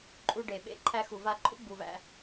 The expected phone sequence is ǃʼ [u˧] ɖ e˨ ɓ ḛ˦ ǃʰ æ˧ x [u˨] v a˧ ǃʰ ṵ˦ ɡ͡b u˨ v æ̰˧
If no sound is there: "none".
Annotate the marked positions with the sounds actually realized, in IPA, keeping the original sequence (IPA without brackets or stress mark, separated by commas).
u˧, u˨